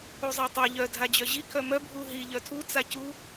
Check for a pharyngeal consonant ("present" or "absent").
absent